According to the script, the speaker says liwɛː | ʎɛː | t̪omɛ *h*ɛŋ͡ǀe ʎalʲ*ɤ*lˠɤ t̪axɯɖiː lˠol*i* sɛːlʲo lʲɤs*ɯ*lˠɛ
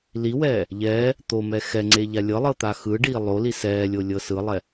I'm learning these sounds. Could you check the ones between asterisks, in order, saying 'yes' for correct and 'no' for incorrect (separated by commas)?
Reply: no, yes, yes, yes